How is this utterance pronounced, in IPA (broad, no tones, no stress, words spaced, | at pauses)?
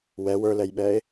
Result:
wɛ wə˞lɛjɓɛːe̯